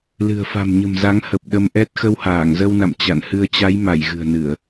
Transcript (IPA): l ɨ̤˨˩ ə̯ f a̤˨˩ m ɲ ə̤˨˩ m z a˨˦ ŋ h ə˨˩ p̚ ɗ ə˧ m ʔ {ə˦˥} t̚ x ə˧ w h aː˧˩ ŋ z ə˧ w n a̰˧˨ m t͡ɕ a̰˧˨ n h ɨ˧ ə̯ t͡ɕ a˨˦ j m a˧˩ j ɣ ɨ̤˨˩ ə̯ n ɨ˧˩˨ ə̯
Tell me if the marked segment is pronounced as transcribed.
no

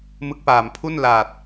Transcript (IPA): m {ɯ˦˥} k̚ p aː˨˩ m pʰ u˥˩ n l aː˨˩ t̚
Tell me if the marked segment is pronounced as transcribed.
yes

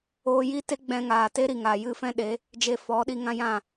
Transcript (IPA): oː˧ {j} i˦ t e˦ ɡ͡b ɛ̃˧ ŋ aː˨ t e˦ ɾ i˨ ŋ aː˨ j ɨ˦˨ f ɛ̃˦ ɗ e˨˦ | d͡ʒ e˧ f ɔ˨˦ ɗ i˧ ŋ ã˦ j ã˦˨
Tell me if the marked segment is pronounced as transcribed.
yes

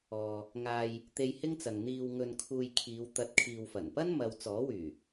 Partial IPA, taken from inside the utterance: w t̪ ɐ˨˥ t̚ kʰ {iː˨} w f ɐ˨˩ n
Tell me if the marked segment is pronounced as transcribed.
yes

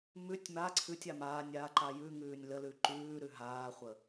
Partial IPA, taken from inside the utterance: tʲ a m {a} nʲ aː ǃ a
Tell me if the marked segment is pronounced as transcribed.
no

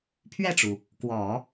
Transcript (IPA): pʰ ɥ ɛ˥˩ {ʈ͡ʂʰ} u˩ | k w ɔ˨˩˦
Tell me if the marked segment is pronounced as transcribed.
no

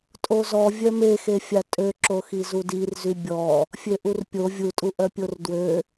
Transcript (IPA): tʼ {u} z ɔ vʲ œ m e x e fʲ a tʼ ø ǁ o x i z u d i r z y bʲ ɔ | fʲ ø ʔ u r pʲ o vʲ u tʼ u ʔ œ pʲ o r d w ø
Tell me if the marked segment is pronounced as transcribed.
no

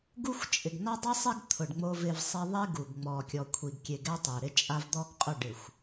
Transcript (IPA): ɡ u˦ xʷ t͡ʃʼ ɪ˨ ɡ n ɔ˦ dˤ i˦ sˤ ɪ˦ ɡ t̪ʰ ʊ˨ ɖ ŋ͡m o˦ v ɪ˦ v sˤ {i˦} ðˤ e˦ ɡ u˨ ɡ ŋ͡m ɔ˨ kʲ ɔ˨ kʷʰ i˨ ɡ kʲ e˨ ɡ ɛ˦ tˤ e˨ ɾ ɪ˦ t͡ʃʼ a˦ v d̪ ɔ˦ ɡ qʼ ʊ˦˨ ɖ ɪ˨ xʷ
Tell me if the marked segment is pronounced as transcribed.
yes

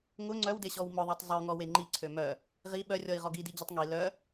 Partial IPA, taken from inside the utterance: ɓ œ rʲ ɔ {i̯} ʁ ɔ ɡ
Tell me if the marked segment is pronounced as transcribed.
yes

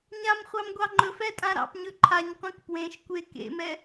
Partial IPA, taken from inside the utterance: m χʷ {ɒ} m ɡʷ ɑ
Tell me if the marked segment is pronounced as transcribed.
no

